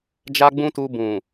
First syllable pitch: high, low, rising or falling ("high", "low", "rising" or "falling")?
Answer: high